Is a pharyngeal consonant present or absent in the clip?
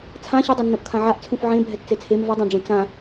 present